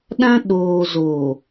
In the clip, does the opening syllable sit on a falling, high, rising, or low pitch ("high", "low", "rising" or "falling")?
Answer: high